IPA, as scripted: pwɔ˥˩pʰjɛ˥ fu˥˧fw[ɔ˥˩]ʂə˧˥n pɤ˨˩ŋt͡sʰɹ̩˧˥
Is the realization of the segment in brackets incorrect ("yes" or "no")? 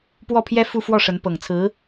no